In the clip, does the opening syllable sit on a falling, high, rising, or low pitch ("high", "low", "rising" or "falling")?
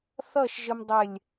falling